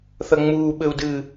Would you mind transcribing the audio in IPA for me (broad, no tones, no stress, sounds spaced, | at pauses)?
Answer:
θ ɐ ŋ͡m uː ɓ ɘ u̯ d ɨ